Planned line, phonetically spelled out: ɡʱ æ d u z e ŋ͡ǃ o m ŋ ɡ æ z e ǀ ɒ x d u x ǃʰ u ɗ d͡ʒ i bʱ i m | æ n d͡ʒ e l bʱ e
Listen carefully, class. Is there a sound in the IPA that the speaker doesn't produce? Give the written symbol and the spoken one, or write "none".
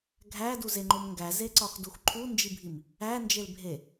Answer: ɗ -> n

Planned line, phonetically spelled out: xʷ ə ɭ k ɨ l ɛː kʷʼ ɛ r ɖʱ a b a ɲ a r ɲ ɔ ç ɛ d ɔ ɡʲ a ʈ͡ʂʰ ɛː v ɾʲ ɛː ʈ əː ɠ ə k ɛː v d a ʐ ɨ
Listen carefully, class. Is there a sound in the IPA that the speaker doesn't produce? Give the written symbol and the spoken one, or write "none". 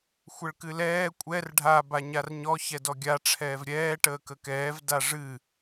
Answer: ɠ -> k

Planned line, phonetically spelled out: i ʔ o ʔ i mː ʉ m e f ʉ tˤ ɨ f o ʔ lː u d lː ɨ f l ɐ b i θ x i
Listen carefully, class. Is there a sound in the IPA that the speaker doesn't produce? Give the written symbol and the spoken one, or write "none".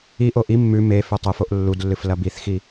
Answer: none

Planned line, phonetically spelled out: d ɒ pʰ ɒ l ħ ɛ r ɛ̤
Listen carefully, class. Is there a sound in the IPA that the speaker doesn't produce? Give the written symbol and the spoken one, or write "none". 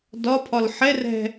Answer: none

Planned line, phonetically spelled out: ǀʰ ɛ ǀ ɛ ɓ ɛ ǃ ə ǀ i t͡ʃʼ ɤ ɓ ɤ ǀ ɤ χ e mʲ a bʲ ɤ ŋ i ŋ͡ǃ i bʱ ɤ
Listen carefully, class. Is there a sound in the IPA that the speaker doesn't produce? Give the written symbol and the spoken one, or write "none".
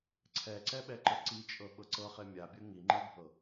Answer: none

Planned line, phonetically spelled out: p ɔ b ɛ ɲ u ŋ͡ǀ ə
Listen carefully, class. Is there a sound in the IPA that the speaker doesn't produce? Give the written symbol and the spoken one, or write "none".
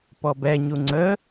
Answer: none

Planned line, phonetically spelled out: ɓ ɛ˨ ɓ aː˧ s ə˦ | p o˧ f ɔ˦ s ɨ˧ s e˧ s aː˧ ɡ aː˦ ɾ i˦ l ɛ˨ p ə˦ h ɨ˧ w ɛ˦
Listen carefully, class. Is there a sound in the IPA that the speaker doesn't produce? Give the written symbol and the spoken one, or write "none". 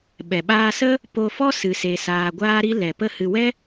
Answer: ɡ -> ɡʷ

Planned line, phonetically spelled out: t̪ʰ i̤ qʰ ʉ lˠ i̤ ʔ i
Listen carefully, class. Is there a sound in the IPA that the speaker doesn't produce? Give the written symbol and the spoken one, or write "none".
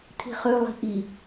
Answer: qʰ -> χ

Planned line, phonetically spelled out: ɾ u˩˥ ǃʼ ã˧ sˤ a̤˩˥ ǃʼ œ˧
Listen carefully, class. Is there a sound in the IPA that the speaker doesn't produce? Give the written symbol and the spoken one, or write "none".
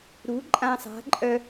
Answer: none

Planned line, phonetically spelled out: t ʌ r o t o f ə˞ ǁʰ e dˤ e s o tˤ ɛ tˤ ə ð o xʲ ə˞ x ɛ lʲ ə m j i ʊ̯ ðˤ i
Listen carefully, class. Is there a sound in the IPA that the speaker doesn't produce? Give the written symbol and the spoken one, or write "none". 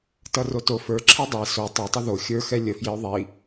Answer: m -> f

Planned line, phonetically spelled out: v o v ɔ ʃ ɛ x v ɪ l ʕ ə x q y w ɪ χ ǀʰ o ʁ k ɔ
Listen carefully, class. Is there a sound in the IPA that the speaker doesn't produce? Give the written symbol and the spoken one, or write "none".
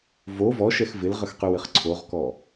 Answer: ʕ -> ʁ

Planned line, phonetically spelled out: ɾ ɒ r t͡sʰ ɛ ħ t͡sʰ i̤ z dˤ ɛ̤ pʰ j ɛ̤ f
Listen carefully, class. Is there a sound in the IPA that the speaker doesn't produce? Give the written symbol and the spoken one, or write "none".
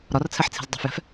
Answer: pʰ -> f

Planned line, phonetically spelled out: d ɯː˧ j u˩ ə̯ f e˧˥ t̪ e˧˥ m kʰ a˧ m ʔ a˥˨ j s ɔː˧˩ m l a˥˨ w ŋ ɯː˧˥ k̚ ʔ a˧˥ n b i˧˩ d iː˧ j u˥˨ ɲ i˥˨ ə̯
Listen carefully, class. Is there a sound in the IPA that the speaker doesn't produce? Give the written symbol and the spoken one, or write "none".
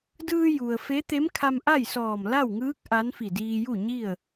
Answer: b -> f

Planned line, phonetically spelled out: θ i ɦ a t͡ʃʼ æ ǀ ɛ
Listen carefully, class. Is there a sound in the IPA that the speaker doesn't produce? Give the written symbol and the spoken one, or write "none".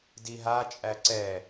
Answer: θ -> d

